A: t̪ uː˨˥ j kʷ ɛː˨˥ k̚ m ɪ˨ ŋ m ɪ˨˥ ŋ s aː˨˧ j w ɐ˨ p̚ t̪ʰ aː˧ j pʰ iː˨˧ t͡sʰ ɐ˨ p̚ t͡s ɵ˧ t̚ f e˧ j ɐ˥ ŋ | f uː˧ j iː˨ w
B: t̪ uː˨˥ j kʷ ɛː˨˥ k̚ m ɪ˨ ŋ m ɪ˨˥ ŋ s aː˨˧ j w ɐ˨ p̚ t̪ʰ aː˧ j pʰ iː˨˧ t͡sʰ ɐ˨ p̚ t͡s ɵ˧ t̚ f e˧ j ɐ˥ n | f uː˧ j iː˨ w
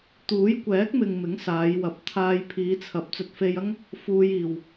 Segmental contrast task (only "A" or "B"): A